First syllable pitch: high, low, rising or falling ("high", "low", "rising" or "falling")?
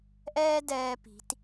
high